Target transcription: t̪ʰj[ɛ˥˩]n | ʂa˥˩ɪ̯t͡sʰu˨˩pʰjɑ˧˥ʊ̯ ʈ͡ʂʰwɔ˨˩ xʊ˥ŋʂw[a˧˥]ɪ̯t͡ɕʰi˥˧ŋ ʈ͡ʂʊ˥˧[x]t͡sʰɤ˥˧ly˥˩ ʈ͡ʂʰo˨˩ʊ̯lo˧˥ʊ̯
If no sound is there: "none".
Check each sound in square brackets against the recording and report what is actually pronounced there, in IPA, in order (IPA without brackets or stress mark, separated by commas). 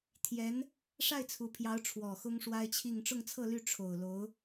ɛ˧˥, a˥, ŋ